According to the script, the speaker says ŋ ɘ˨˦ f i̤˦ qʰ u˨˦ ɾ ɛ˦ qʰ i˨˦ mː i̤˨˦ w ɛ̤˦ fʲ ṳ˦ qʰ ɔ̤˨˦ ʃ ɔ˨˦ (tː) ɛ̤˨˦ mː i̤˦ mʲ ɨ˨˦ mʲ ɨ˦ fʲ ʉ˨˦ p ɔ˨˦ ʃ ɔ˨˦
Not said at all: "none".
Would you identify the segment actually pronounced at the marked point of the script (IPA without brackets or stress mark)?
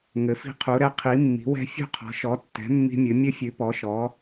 tː